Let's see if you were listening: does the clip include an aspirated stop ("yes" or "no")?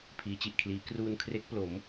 yes